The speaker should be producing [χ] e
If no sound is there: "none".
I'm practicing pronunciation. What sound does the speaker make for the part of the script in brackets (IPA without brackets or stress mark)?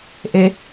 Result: ʔ